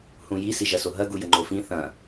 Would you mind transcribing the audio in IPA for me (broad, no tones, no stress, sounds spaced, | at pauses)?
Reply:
h ũ j i s i ʒ ɐ s o ɦ ɐ ɡ u j ə ŋ͡ǃ o f ĩ θ ɐ̃